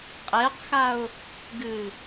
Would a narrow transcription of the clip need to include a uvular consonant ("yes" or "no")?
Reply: yes